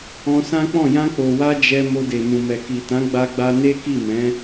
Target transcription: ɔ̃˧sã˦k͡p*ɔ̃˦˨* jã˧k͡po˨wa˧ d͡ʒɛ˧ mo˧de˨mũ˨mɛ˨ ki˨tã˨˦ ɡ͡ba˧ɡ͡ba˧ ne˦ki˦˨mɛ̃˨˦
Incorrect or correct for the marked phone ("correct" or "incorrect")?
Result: correct